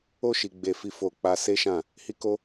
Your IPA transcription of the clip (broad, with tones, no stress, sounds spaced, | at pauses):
o˦ ʃ i˧ ɡ͡b e˧ f i˧ f o˨ k͡p a˧ s e˦ ʃ ã˦˨ | h i˦ k o˦